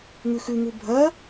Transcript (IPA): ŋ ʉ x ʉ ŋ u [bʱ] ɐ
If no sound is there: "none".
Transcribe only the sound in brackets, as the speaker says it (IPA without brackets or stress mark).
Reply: bʱ